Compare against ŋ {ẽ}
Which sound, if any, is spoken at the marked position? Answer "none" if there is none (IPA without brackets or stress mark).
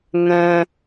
ɛ̃